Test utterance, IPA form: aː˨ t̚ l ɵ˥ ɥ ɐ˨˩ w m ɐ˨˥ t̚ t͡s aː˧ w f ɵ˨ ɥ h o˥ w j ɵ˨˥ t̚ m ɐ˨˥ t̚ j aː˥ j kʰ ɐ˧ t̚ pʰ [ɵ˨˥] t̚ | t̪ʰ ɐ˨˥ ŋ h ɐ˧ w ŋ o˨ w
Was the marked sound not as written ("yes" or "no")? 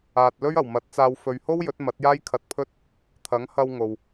yes